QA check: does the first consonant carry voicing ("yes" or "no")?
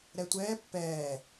yes